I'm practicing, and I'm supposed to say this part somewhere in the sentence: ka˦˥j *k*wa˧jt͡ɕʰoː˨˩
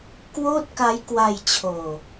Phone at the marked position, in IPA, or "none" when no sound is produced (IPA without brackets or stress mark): k